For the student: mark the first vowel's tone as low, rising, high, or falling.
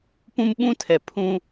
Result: high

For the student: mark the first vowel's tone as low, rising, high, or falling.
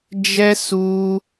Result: high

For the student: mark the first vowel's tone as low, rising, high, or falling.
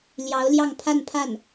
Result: rising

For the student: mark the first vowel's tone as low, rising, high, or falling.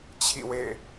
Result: falling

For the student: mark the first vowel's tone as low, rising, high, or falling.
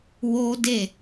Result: high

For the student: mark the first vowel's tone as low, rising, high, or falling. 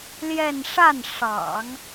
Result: falling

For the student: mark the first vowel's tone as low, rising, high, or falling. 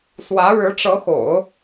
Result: rising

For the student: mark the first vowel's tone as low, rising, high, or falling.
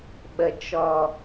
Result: low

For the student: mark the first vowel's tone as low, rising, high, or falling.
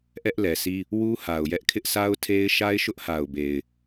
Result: high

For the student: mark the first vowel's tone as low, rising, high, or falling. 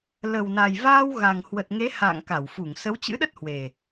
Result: low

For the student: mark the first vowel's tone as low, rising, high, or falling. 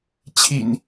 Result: low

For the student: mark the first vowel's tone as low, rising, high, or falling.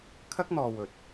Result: high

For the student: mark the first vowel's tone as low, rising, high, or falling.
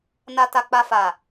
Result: low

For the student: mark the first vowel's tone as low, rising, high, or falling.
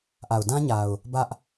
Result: low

